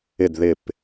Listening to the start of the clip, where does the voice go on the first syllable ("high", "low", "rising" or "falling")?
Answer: falling